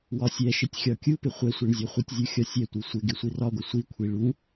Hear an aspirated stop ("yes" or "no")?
yes